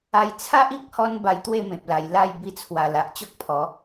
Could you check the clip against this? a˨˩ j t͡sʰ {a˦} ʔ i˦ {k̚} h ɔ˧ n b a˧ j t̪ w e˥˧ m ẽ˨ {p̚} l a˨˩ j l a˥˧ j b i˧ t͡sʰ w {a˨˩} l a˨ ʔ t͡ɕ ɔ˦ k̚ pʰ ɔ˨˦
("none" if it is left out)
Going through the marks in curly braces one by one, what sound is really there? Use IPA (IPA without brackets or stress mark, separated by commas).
a˦, k̚, p̚, a˨˩